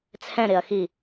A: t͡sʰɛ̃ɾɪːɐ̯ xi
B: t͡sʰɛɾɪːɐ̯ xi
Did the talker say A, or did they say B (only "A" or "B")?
A